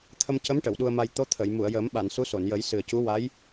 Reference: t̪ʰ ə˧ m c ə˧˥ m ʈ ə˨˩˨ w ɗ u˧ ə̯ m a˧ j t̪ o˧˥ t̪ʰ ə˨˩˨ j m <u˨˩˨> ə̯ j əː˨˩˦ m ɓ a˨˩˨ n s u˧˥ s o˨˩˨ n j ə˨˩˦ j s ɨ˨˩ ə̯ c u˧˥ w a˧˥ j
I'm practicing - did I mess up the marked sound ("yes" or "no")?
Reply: no